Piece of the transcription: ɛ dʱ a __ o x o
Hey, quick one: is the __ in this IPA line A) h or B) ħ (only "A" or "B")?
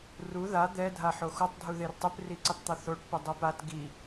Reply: B